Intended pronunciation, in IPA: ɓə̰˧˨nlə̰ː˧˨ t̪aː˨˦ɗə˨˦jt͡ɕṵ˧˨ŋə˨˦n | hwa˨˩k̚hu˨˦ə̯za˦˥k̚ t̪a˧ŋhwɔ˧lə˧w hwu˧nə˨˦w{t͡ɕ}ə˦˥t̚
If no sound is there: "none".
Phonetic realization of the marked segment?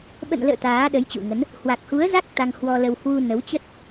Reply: t͡ɕ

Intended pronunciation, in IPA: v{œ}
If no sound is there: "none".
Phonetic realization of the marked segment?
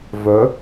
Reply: œ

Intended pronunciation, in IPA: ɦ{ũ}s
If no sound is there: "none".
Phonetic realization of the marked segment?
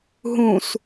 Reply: ũ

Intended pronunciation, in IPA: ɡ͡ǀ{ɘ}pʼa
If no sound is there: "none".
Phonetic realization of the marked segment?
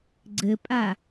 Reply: ɘ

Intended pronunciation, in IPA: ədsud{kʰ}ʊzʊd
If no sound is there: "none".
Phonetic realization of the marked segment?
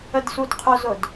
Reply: qʰ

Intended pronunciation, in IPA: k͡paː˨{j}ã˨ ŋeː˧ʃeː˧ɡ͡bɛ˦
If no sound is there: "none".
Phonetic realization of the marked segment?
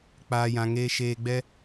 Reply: j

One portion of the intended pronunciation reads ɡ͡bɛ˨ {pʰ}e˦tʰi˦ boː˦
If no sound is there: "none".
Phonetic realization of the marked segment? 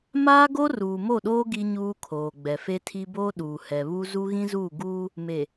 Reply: f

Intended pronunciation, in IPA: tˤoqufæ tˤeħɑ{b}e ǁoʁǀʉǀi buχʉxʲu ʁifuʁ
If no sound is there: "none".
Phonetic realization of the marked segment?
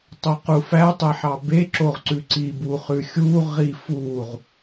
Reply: b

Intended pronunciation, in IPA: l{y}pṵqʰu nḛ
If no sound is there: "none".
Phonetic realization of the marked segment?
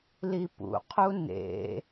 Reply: i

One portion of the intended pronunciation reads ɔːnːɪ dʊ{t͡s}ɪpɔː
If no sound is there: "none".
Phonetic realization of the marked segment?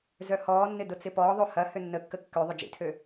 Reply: t͡s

